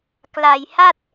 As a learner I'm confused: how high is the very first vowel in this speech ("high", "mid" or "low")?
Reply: low